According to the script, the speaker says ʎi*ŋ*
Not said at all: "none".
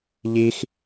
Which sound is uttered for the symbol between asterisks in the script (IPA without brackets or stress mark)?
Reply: x